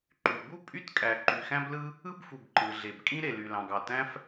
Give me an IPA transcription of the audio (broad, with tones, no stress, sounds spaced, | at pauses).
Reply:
ǃ y˩ b u˥ pʼ y˥ t kʼ æ˩ ǃ y˩ x æ̃˥ b l ɯ˥ | ɯ˥ b f u˩ b ǃ ɯ˩ ɮ e˩ b kʼ ĩ˥ ɾ e˩ l y˩ l ɑ̃˩ ɡ ɑ˩ t æ̃˥ f